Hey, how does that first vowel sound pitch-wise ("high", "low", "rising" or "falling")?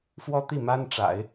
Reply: high